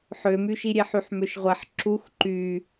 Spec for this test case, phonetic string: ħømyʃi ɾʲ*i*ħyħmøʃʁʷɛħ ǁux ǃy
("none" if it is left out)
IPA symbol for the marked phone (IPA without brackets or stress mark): e